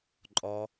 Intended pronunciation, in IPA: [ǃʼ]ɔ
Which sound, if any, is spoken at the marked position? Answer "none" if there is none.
ǃʼ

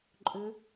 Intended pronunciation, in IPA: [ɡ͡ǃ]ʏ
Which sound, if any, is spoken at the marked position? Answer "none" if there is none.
ǃʼ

